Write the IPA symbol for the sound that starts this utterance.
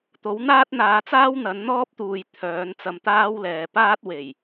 t̪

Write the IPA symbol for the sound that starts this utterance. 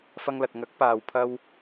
f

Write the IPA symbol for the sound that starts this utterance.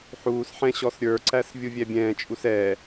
ħ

